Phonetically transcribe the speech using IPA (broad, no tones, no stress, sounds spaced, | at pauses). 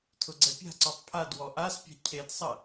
tʰ ʊ ɡ͡ǀ ɛ pʲ a̤ ǀ ɔ tˤ pʰ a d w ɔ ʔ a s pʲ a̤ cʰ e d sˤ ɐ